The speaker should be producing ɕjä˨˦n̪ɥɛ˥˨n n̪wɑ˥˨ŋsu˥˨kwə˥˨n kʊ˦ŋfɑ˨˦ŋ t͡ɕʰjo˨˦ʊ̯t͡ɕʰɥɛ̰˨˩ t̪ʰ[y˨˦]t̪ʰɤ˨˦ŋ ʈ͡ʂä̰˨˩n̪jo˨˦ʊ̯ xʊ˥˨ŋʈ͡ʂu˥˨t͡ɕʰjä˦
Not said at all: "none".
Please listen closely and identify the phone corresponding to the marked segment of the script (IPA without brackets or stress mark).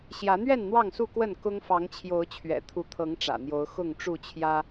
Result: u˨˦